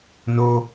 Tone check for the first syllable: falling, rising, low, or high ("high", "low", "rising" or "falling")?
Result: high